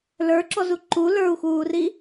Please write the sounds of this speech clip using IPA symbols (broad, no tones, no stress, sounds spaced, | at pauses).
l ə˞ ǁ ɔ z u ǃ u l ə˞ u̯ x uː r i